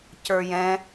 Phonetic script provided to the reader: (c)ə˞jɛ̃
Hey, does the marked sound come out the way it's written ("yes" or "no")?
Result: yes